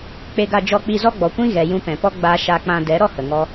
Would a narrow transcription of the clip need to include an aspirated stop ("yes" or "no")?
no